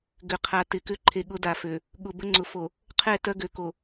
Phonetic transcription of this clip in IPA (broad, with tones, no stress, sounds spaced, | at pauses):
ɡ ʏ˨ qʰ a˨ t ɪ˨ k ʏ˦˨ ǃʰ e˨ ɠ ʊ˦ d a˨ f ø˨ | ɠ ʊ˨ b ə˦ ŋ͡ǀ ʊ˨ f o˨ | qʰ ɛ˦˨ t œ˦ ɡ ø˨ k o˨